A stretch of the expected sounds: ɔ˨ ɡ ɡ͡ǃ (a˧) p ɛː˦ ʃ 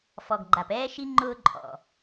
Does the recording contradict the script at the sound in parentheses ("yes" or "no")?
yes